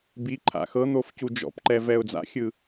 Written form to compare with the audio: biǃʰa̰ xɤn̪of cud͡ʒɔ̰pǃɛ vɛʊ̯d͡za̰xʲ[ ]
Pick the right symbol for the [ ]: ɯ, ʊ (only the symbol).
ɯ